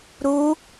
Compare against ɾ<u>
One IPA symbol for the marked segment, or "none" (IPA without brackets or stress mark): u